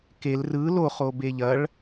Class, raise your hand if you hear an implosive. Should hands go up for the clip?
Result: no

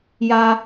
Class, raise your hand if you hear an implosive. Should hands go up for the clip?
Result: no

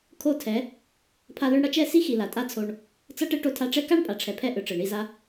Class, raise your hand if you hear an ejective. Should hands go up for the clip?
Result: yes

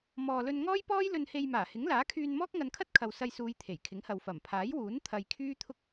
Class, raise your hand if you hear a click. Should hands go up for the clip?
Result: no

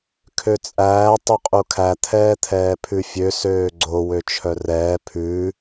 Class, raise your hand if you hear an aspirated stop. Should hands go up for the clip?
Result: yes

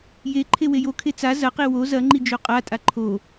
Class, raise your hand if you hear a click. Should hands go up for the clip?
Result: yes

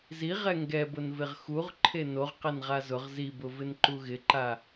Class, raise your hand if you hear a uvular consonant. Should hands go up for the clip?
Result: yes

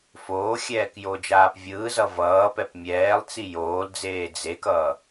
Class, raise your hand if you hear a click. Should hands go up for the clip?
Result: no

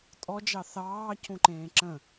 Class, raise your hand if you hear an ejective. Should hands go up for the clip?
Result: yes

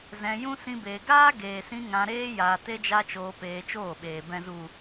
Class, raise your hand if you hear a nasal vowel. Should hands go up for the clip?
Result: yes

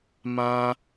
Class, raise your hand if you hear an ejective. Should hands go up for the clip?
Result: no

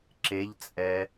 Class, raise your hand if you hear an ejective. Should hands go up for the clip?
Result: yes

